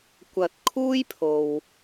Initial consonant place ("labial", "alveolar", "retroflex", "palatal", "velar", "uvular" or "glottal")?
velar